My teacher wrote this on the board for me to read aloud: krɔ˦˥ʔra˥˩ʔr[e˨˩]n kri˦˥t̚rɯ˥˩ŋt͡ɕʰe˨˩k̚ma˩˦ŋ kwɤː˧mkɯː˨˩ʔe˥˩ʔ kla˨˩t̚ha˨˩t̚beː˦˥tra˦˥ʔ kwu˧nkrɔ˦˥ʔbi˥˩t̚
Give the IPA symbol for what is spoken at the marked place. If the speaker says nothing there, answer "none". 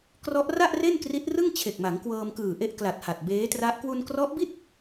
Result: e˥˩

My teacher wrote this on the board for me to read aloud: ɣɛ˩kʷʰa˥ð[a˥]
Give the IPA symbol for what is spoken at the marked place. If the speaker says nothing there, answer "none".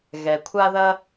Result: ɐ˥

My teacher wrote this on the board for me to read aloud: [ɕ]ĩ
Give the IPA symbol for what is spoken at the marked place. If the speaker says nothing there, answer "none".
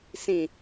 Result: s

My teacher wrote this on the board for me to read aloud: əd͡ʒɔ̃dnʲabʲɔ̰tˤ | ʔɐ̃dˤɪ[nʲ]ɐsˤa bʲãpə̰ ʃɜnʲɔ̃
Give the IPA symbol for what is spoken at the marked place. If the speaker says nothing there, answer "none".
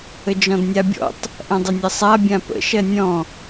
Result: nʲ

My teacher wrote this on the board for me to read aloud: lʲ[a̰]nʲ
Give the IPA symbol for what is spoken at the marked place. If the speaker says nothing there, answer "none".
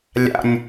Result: a̰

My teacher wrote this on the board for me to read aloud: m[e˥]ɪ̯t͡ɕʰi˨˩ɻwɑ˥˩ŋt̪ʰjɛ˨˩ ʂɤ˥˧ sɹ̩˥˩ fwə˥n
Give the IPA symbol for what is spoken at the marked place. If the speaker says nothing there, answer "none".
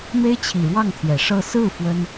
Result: e˥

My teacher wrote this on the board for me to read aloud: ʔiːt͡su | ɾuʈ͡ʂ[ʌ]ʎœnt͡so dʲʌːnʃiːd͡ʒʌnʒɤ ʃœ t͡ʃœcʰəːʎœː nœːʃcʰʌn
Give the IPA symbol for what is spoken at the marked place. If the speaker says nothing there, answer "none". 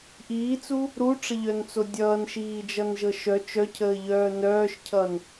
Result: ə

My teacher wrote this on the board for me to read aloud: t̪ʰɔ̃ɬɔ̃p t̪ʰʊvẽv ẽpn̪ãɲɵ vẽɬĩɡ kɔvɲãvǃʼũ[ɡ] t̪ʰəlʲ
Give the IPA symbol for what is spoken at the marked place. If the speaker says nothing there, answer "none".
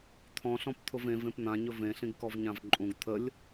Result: ɡ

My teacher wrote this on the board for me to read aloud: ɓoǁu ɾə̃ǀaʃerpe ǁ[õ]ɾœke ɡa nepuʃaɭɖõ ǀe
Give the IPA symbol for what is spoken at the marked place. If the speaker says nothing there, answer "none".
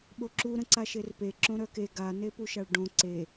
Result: õ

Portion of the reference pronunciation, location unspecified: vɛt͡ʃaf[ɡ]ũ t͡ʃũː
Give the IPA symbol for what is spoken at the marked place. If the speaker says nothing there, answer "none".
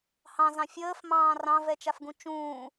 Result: ɡ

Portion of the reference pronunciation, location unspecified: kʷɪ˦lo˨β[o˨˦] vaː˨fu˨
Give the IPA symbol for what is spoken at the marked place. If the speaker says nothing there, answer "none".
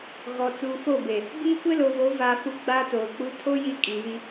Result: o˨˦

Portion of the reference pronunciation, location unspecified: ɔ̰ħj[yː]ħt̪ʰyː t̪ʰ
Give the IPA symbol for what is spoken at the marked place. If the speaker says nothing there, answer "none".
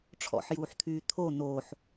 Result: uː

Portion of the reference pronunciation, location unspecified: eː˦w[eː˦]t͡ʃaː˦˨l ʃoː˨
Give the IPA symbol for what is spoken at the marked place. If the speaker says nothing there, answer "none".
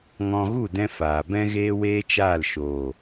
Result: eː˦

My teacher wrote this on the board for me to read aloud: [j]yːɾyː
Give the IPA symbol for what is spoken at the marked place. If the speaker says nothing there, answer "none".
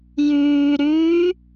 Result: j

